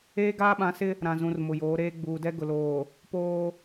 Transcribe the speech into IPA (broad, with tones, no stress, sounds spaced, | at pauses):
eː˦ ɡ aː˦ ɓ ã˨˦ s ɪ˦ | ɾ ã˨ z ũ˨ r m ʊ˨ j oː˨˦ ɾ eː˦ ɡ͡b uː˨ d ɛ˦ ɡ ʊ˨ l oː˨ | p oː˦